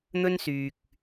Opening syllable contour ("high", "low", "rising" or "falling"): high